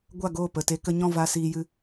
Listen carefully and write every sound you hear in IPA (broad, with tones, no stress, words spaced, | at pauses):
ɡʷa˦˨ɡoː˦˨ pə˨te˧ kə˧ɲɔ̃˦˨ va˧ siː˧jɨ˧